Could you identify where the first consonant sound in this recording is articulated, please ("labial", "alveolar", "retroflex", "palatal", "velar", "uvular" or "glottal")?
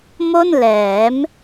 labial